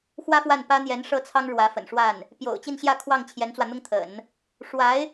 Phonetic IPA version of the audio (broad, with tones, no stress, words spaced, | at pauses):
xwä˥fwa˥˩npä˥ n̪jɛ˧˥nʂɤ˥˩ t͡sʰɑ˥ŋɻwä˧˥fə̰˨˩nʂwa˥˩n | pjo̰˨˩ʊ̯t͡ɕi˥˧nɕjä˥˧ kʰwɑ˥˩ŋt͡ɕʰjɛ˧˥nt͡swä˧n̪ʊ˥ŋ t̪ʰə̰˨˩˦n | ʂwa˧˥ɪ̯